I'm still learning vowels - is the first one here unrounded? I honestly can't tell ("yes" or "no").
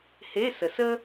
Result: yes